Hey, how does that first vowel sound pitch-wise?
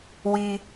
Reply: high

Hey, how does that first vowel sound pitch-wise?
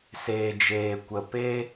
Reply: low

